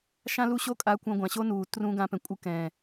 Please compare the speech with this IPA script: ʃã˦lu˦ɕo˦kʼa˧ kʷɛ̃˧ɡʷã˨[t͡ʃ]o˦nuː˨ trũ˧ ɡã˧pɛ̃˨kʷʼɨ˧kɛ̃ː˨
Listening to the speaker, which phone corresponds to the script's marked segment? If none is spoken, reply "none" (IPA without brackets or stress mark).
ɕ